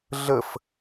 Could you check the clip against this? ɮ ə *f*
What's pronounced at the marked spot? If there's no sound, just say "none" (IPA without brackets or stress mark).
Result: f